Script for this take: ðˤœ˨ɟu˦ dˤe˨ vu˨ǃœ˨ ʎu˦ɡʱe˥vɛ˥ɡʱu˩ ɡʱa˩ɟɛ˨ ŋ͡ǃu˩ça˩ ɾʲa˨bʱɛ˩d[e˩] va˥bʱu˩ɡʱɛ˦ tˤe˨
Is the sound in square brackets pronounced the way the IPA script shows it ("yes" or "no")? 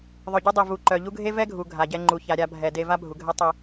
no